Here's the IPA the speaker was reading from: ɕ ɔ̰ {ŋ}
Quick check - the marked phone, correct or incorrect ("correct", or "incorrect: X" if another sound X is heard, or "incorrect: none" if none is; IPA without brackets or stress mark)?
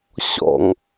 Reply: correct